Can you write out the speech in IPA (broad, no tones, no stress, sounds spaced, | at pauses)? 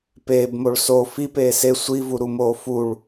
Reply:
p eː b m o ɭ s o f i p eː s e sʷ i v u ɾ u m oː f u ɭ